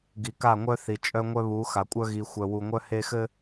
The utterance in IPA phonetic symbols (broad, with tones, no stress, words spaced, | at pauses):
ɡi˨ka˦˨ŋʷœ˦θi˨ t͡ʃʼœ˦ŋʷœ˦βu˨˦ xa˨kʷʼœ˦ ɣi˨xʷœ˨wu˨ŋʷœ˦ he˦xɘ˦